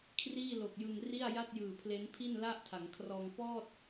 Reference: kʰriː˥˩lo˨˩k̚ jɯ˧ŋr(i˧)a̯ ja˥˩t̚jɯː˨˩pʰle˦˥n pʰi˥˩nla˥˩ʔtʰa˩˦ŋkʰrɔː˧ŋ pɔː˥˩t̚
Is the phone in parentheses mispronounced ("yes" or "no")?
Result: yes